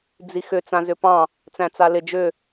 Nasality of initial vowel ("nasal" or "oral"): oral